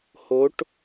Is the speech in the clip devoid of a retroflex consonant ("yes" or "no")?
no